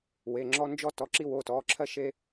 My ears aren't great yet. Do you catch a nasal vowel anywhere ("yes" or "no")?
no